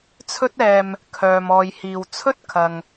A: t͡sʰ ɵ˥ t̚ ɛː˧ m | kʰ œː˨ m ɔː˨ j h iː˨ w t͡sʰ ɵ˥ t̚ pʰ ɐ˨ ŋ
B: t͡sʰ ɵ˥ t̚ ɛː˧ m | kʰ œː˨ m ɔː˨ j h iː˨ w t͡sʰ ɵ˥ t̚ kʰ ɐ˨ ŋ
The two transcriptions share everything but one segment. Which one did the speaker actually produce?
B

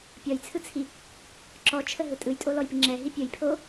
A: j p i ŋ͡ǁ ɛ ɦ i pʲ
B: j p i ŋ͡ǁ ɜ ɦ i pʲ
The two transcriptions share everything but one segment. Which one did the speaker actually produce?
A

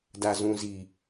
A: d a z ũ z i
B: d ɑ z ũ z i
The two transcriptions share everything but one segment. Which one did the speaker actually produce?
A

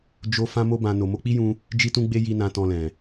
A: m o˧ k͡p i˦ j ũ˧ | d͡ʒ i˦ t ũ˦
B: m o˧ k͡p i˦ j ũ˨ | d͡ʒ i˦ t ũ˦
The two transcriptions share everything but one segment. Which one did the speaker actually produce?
A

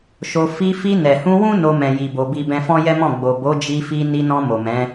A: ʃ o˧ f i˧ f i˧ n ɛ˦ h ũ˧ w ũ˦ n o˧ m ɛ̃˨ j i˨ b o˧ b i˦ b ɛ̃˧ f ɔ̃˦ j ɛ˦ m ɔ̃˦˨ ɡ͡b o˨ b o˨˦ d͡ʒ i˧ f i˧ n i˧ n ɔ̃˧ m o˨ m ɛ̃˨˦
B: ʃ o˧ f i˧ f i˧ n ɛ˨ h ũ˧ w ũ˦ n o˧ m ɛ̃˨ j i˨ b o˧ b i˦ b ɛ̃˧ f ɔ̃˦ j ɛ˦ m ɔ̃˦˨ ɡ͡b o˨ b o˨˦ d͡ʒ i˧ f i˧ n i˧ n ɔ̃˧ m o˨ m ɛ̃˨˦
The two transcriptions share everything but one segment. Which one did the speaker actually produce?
B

